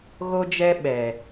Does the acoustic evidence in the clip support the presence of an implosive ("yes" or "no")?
yes